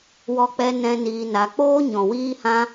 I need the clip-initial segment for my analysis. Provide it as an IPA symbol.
w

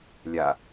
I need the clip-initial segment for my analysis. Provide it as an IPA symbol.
lʲ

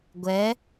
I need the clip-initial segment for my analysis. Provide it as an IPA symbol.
ɡʷ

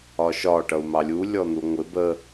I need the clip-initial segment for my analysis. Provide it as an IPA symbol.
ɒ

